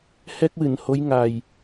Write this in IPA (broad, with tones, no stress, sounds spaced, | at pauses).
h ɛ˦˥ k̚ w ɨ˨˩˨ n h o˧˥ j ŋ a˨˩ j